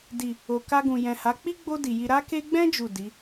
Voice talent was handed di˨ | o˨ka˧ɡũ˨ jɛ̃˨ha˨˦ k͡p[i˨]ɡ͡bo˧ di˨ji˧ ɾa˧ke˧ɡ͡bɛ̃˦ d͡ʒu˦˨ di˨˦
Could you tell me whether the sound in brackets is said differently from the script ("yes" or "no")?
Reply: yes